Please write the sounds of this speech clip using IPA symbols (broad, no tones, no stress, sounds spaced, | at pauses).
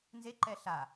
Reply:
n z e ǃ ɛ ɬ a